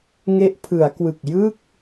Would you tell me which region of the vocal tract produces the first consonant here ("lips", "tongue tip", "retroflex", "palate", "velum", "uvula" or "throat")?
velum